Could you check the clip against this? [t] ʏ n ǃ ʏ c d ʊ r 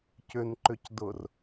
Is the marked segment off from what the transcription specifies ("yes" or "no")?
yes